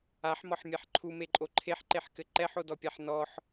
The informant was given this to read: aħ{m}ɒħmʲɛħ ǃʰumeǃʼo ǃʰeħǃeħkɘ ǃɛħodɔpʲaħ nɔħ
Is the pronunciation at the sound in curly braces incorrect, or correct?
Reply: correct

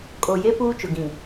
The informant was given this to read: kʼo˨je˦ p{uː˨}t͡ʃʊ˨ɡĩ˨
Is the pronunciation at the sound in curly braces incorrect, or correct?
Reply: incorrect: uː˦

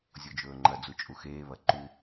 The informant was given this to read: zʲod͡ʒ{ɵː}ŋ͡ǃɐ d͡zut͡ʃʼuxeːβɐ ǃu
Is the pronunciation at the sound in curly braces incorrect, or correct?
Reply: correct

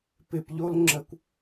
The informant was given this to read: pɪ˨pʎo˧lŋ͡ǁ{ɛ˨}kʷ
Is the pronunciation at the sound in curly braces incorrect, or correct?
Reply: incorrect: ə˨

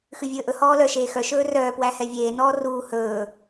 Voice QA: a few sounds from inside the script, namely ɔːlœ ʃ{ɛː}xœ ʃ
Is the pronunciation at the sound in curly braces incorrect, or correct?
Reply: incorrect: eː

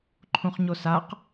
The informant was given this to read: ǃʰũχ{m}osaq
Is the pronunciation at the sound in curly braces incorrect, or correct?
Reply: incorrect: ɲ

